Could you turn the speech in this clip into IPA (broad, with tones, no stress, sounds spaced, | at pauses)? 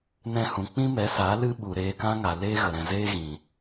n ɛ̃˧ h ũ˨ k͡p ĩ˦ m ɛ˨˦ s a˨˦ l ɨ˦ ɓ u˨ ɾ eː˧ k ã˦ ŋ a˨ l eː˦ ɣ ə˨ ɾ ɛ̃˨ z eː˦ ɣ ĩ˨